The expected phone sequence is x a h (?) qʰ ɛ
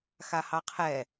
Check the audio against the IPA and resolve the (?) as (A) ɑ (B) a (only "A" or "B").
A